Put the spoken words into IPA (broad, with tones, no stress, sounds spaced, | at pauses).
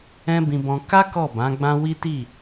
ɛ̃˦ b ĩ˧ b ɔ̃˧ k a˦ k ɔ˦˨ b ã˨˦ ɡ͡b ã˦ w i˦ t i˦˨